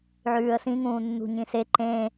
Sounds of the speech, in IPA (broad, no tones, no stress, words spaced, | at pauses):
ʕʉːə̯sĩŋũː nːṳɲĩse ǃẽ